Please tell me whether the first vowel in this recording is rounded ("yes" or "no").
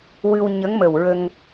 no